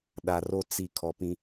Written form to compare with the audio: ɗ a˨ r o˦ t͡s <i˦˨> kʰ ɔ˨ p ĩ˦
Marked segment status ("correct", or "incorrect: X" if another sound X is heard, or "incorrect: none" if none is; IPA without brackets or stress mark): correct